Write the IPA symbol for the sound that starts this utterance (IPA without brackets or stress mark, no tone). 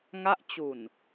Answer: ŋ